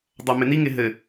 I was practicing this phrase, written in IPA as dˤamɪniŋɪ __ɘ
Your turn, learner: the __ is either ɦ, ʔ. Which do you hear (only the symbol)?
ɦ